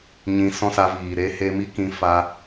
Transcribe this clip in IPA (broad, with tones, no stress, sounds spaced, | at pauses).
ɲ ĩ˧ s ɔ̃˦ s a˧ v iː˨ ɾ e˧ h e˧ m i˦ k ĩ˧ f a˧